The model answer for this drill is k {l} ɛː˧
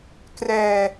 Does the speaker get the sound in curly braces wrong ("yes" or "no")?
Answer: yes